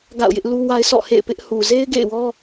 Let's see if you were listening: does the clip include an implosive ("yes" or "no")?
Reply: no